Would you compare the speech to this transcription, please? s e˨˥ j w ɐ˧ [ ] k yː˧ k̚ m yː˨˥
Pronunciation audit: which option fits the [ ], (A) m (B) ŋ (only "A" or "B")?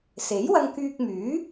B